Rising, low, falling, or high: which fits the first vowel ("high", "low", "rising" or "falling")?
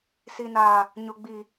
low